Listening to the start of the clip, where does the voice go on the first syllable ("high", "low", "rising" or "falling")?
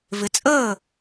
rising